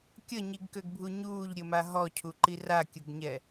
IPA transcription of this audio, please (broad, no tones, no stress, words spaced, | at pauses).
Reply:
kʲəɲiɡkøɡbʱu ɲuːʎɾʲəma ɦɔcʰuǃi rakʲəɡɲɛ